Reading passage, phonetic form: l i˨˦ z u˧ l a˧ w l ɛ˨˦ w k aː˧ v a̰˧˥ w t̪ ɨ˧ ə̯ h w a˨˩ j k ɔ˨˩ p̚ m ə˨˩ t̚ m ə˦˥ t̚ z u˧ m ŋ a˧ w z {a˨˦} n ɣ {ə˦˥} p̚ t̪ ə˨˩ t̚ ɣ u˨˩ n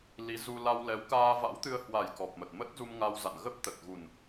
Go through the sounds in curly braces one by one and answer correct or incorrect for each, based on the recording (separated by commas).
incorrect, correct